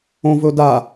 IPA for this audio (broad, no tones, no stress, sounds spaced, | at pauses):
õ v ɵ d a